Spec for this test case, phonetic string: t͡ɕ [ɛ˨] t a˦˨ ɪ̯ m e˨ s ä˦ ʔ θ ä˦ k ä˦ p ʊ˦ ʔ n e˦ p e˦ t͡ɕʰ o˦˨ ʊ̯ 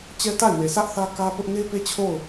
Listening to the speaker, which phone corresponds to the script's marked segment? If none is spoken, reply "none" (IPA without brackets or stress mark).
ɛ˦